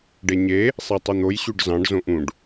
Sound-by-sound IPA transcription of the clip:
ɖ e ɲ e | sˤ e tˤ i n̪ o j ɕ ʉ ɖ z ɑ̃ ɖ z õ ʔ ũ ɖ

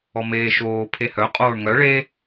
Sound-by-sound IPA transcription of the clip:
ɔ m eː ʃ oː pʰ e h œ qʼ oː ɳ ŋ œ ɭ e

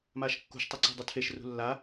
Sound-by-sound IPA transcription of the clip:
m aː ʃ kː ṳ ʃ tˤ ɵ ǀ e̤ dˤ u tʰ e ʃ r ṳ lː a

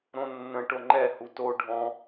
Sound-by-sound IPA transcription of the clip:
ɾ õ nː ə̃ ʈ o ŋ͡ǃ ɛ h u t o ɖʱ ɔ̃

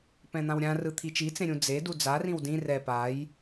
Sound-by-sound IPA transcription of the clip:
p ɛ̃ n̪ ã w ɾʲ ã r ɯ t̪ʰ i t͡ʃ i t͡s ẽ ɾʲ ũ d͡z e d u d͡z a r ĩ w d ĩ r ɛ p a j

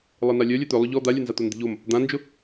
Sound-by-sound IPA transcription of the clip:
lˠ e n a lʲ œ lʲ œ t̪ œ lˠ ʊ ʎ ɔ d̪ a lʲ œ n z a t̪ o n d̪ i̤ ʎ o m | d̪ ã n d͡ʒ ʊ

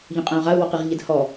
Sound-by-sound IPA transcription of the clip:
ʎ ũ qʼ æ̃ u̯ ʁ a u̯ w ɔ q i ʁ ʎ ɛ d h ɔ

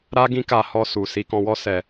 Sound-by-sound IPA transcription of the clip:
ɾ a˦ ɡ ĩ˦ k a˧ h ɔ˧ s u˨ s i˧ k ɔ̃˧ w ɔ˦ s ɛ˧

